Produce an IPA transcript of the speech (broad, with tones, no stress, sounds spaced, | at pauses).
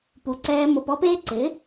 p u˧ ǀ ɛː˦ m o˧ p ɔ˦ p eː˦ ǀ ɪ˨˦